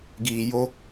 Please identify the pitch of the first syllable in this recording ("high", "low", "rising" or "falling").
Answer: low